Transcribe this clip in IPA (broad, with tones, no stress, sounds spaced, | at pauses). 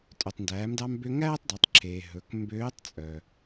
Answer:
tʼ œ˩ tˤ n d æː˩˧ m d ɑ˧ m b ø˧ ŋ æː˥ tˤ d ɑ˩˧ tˤ ǁʰ eː˩ ɦ ɵ˩˧ k m b øː˧˥ tˤ t͡sʼ œ˩